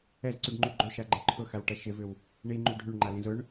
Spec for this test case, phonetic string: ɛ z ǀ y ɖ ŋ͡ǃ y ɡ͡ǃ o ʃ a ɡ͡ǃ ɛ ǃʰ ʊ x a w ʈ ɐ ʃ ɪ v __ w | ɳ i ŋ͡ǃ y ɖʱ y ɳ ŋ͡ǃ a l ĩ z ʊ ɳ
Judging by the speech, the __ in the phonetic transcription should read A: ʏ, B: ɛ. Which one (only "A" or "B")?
A